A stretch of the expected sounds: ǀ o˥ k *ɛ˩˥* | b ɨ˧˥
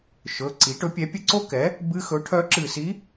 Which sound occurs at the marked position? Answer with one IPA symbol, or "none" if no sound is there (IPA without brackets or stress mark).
ɛ˩˥